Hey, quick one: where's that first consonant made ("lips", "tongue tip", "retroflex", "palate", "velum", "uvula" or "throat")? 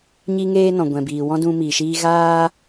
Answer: palate